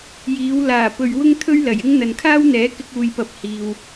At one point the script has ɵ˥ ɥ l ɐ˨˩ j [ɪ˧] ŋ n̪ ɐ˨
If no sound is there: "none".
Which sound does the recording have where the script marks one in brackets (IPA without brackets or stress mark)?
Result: ɪ˥